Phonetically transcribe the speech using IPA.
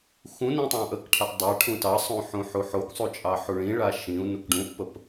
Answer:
x ũ n ĩ tˤ ɑ̃ ʔ ə k ʈʰ a ʔ dˤ a ʈʰ ũ t ɑ sˤ ũ ħ ũ ħ u ħ o k sˤ u t͡ʃʼ ɑ ħ u ɭ ĩ ɭ a ʃ ĩ u̯ n u k ɖ ũ ʔ p ə p

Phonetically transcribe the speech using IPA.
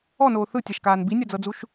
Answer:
ɔ n oː θ ɯ tʲ a ʃ k aː n b i nʲ a d͡z ɤ d͡z u ʃ

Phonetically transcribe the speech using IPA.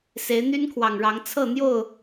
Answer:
s e˨˦ ɪ̯ n̪ y˦ n kʰ w ɑ˨˩ ŋ ɻ ɑ˨˦ ŋ t͡sʰ ɤ˥˨ n̪ j o˥˨ ʊ̯

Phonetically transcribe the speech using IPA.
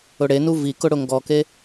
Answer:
ʊ ɽ e n u v i k ʊ ɽ ʊ ŋ ɡ ɔ k e

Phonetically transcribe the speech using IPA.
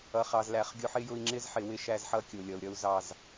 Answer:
ʌ˨ χ ɑ˨ z l æ˨ χ ɡʲ ʊ˦ ħ ɪ˦ j ʊ˦ i̯ ŋ͡ǁ ɪ˦ z ħ ɪ˨ w ɪ˦ ʃ æ˦˨ z ħ ʌ˦ kʲ ʊ˨ lʲ ʌ˨ u̯ ɾʲ ʌ˦ u̯ z ɑ˦˨ z

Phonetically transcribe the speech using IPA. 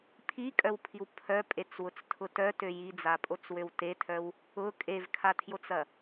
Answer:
pʰ i kʼ œ w pʰ i w pʰ œ pʼ e t͡s w ʊ t͡s tʰ ʊ t œ t ø j i d͡z a pʼ o t͡s w ø w t e tʰ œ w | ʊ kʼ e v kʰ a tʰ j o t͡s ɐ

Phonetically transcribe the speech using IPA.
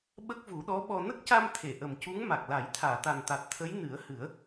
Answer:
ɓ ə˦˥ k̚ v u˨˩˦ ɗ ɔ˧˥ ɓ ɔ˧ n ə˦˥ k̚ c a˧ m t̪ʰ e˨˩˨ ʔ ə˨˩ m c u˧˥ ŋ m a˨˩ k̚ l a˨˩˦ j t̪ʰ aː˨˩˨ t̪ a˨˩ n t̪ a˨˩ t̚ t̪ʰ ə˧˥ j n ɨ˨˩˦ ə̯ h ɨ˨˩˦ ə̯

